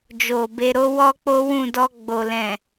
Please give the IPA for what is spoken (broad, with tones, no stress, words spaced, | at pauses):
d͡ʒo˨ be˧ɾo˦ wɔ˦k͡po˦wũ˦˨ dɔ˧ɡ͡bo˨ lɛ̃˨